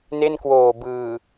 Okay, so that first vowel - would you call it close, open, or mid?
mid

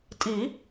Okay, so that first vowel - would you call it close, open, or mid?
close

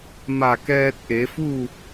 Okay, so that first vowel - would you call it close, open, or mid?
open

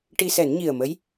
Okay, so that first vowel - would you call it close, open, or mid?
close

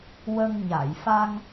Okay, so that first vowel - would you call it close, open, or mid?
mid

